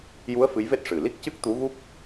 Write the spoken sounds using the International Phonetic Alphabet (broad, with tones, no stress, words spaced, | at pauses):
ju˧˥ə̯ fɨ˧˥jve˦˥t̚ ʂɨ˨˩ li˦˥k̚cɨ˦˥k̚ t̪u˧˥ɣu˦˥k̚